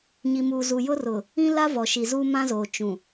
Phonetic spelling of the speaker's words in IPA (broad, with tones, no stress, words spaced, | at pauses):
ɲi˨muː˨ zu˨jʊ˦rʊ˨ | ĩ˦ la˦ vɔ˨ ʃi˨zuː˦ mã˦zoː˨ t͡ʃũ˨